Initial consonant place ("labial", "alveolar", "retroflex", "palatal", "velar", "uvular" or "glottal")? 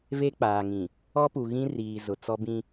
labial